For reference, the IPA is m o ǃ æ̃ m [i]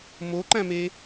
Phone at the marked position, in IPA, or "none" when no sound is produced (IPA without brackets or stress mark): e